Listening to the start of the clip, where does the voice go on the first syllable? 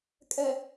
low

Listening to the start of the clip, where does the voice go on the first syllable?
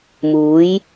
rising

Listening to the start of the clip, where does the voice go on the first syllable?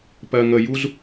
low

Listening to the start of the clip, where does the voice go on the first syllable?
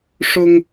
high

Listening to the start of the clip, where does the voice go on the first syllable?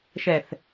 low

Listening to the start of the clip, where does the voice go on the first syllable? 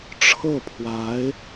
falling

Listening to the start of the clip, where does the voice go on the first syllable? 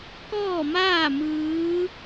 falling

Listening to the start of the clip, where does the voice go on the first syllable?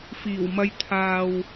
low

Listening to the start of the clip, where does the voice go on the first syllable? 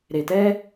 low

